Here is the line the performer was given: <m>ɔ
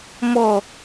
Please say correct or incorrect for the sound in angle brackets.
correct